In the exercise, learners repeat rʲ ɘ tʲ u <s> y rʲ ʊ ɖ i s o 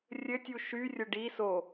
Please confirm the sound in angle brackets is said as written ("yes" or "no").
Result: no